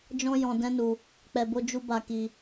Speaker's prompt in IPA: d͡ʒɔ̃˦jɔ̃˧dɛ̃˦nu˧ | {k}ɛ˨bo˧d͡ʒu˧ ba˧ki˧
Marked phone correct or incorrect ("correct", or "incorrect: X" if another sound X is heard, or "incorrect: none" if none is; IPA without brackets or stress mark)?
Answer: incorrect: k͡p